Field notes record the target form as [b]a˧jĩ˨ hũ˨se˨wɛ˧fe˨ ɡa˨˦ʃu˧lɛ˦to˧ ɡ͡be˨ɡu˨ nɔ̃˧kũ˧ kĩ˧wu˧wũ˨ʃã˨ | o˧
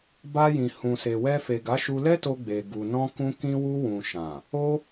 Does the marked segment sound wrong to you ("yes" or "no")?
no